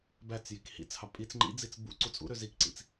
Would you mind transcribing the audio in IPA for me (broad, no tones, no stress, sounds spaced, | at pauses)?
b æ t͡s j i k h ḭ t͡s h ɑ pʼ i t͡s ŋ͡ǃ ḭ d͡z i t͡s b ṵ ǀ u t͡sʼ ṵ ɾ ø z i k ǀ ḭ t͡s